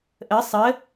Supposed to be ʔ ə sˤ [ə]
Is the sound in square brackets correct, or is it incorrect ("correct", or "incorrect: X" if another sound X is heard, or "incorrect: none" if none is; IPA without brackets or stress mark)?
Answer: correct